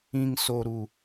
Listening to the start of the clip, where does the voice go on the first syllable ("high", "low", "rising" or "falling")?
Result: low